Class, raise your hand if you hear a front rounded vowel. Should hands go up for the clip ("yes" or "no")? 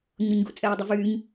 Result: yes